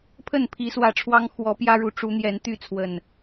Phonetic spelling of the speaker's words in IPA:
pʰ ə˥˨ n pʰ i˨˦ s w ä˨˦ ʈ͡ʂʰ w ɑ˦ ŋ x w ɔ˨˦ p j ä˦ ɻ u˨˦ ʈ͡ʂ u˨˦ n̪ j ɛ˨˦ n t̪ y˥˨ t͡sʰ w ə˨˩ n

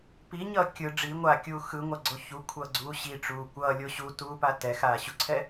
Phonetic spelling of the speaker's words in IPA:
p i ɲ ʌː kʲ ɯ ɖ͡ʐ i ŋʷ aː kʲ uː x ɯ ŋʷ a ɡ͡ǀ o ç u kʷʰ ʌː ɡ͡ǀ uː ɕ i ʈ͡ʂ uː kʷ ʌː lʲ o ɕ u t uː p a t ɛ x aː ɕ u ǀʰ ɛ

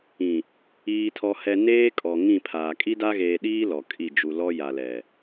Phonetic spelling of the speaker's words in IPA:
ĩ˨ | iː˨ tʰ ɔ˨ h ɛ˨ n eː˦ kʼ ɔ˨ ŋ ĩ˦˨ pʰ aː˨ kʼ i˦ d a˦ ɣ eː˨ ɗ iː˦ l ɔ˨ kʼ i˦˨ d͡ʒ u˨ l ɔ˦ j a˨ l ɛ˨

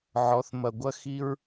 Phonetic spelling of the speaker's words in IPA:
ʕ ɔ˨˦ θ m ɐ˨ ɡʷ ɐ˦ x i˦ ɹ

